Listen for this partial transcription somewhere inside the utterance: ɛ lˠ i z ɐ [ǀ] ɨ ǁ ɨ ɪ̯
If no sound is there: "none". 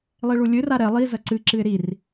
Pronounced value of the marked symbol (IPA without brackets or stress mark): ǀ